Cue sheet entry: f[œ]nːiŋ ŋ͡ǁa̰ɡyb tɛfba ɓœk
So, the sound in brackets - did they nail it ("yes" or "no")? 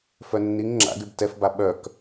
yes